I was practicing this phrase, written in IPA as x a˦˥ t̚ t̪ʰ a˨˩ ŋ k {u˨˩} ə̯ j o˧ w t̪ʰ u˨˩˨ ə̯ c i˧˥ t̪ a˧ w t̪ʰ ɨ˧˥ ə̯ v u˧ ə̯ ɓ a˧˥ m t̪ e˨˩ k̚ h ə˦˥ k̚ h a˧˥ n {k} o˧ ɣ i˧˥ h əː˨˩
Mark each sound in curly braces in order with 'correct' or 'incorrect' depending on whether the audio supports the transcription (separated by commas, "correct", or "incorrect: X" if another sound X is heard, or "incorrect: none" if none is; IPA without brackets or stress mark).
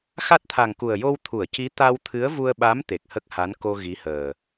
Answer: correct, correct